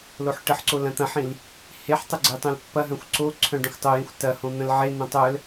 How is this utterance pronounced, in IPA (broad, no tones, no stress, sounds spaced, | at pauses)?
l o ħ ʈ ə ħ ǀ o l ɐ̃ t̪ ɐ̃ ħ ĩ l | h e ħ tˤ ə ɡ͡ǀ e tˤ œ̃ l pː ɐ ɦ œ̃ xʷ ǀ o ǀʰ œ̃ ɖ ə̃ xʷ tˤ o j ĩ xʷ t ɐ h õ n̪ ə̃ l ʕ e n̪ õ tˤ œ l